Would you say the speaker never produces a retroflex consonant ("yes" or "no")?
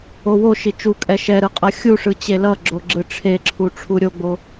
no